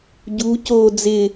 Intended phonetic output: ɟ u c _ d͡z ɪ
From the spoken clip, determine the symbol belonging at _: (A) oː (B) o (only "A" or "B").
A